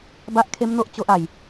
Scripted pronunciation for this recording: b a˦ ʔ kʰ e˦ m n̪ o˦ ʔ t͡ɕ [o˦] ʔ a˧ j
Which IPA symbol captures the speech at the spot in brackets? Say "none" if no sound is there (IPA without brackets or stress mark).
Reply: o˦